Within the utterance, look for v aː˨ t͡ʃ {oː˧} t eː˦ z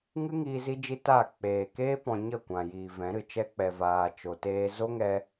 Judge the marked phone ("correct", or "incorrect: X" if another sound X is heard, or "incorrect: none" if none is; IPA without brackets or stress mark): incorrect: o˧